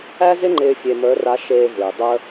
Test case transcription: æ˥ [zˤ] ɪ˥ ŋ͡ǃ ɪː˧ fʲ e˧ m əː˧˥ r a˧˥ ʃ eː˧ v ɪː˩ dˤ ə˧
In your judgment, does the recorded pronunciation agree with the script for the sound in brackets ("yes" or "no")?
no